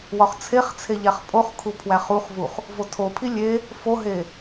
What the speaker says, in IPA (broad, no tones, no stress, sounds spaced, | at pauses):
w ɒ χ t͡sʰ e χ t͡sʰ e ʎ æ χ pʼ o χ kʰ u pʰ w æ χ u χ v u χ | v o tʰ o pʰ i lʲ e | f o ɦ e